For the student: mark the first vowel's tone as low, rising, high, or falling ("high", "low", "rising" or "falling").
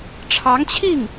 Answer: rising